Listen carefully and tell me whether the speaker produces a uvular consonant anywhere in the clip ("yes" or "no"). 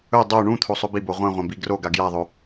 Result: yes